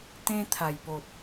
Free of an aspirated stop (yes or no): no